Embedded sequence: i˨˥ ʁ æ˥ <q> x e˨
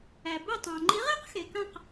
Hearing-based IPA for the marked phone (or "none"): q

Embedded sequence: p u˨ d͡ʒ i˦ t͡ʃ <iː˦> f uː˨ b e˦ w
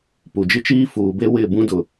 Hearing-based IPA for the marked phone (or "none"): iː˦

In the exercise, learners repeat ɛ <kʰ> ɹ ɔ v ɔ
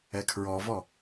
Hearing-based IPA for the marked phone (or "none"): kʰ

